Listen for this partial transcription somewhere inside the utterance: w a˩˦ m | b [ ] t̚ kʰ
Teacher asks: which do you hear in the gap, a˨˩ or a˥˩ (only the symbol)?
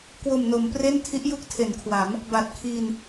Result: a˨˩